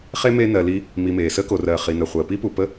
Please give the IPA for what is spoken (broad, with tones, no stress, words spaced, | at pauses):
χe˥me˦ nɜ˨li˦ | mi˨meː˩ səː˥ko˩rɜː˩ χi˩nɜ˩ χʷəː˩pi˥ pu˩pə˦